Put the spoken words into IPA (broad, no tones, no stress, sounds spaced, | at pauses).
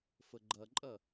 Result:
f ə ɡ͡ǃ ʌ ǃʼ ʌ